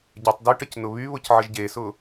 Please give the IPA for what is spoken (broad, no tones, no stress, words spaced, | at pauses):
ɟɛtˤ dyʈəc nʊβyβʊcʕəʒ ɟesʊ